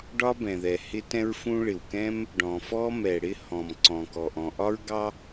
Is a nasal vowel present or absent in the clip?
present